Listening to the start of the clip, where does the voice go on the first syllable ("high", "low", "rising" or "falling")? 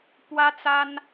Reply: high